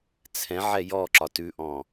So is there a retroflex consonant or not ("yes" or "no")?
no